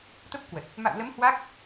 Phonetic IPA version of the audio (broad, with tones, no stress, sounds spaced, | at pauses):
t̪ ə˦˥ p̚ k w ə˨˩ t̚ | m a̰˧˨ w l ə˨˦ m h w a˦˥ k̚